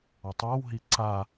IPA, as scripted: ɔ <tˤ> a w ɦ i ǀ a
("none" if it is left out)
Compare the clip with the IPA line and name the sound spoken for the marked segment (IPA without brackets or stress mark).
tˤ